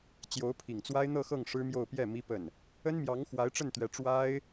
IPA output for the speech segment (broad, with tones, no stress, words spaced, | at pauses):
t͡ɕjo˧˥ʊ̯pʰi˨˩ŋt͡swa˥ɪ̯ n̪ɤ˥˧xɤ˥˩ŋ ʂɻ̩˥mjo˥˧ʊ̯ pjɛ˥˩ mi˥pə˥˩n | ə˥nmjɑ˧˥ŋ xwa˧˥ɪ̯ʈ͡ʂə˥˩nt̪ɥɛ˧˥ ʈ͡ʂwa˥ɪ̯